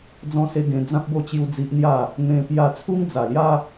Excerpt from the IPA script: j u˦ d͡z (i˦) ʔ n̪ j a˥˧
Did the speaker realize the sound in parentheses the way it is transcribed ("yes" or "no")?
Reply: yes